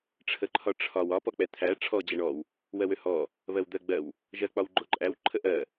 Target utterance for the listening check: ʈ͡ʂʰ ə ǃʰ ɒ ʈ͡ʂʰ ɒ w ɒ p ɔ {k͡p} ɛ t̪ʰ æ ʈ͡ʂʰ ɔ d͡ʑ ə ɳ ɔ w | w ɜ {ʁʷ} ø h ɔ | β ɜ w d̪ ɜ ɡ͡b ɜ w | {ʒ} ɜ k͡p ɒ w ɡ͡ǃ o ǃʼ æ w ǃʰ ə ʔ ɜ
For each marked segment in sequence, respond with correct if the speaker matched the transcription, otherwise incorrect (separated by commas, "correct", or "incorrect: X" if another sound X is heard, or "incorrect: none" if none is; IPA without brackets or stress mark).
correct, incorrect: w, correct